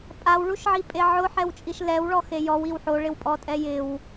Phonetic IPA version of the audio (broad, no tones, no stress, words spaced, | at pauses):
pʼawɭuʃʕipʼe ʕʊħɛwt͡ʃʼiʃ lɛwɭɔ xejɔwiw ħoɭɪwpʼɔtʼɛ jɪw